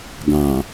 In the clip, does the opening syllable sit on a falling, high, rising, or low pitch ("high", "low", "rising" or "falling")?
low